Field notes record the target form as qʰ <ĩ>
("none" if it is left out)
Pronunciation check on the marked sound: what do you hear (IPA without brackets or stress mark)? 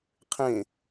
ẽ